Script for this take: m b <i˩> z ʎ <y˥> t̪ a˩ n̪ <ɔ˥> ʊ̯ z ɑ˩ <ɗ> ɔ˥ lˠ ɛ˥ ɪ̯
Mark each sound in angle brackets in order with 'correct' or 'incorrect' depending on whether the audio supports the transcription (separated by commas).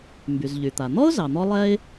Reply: incorrect, incorrect, correct, incorrect